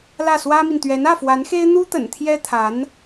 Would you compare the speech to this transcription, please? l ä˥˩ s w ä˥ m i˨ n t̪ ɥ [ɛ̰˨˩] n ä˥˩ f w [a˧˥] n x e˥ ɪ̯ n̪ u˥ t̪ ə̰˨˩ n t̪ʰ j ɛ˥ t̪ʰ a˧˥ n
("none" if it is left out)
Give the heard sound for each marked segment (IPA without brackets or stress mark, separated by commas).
ɛ˧˥, a˧˥